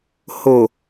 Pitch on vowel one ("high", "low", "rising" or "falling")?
low